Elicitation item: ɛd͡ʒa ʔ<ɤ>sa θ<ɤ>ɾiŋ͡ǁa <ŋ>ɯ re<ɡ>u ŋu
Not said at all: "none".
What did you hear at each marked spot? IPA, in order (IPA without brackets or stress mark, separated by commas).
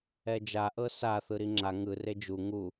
ɤ, ɯ, ŋ, d͡ʒ